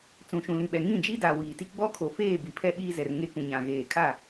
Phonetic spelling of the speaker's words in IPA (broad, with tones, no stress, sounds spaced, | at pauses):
t͡s ũ˨ ʃ ũ˨ l ĩ˨ ɓ ɛ˨ ŋ ĩ˦˨ d͡ʒ i˦ d a˨ w iː˨ t i˦ ɡ͡b ɔ˦ kʰ o˨ f eː˦˨ b i˨ pʰ ɛ˦ ɓ iː˦ z ɛ˨ r ŋ e˦ k ũ˨ ɲ ã˨ ɣ eː˨ kʰ a˦˨